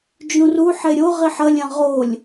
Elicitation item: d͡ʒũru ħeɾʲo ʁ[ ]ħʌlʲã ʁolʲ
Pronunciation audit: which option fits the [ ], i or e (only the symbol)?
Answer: i